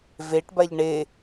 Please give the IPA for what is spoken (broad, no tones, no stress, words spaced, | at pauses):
veʈbaʎ ɳe